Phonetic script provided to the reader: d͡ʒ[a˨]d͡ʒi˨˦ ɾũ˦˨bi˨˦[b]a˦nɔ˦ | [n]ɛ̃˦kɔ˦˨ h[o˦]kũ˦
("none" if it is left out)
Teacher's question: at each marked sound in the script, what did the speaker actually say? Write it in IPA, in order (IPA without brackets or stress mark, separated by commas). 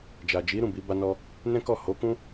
a˨, b, n, o˨˦